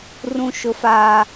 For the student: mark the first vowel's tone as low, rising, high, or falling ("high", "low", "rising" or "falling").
high